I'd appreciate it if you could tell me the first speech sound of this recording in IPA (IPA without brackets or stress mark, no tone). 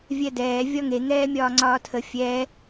vʲ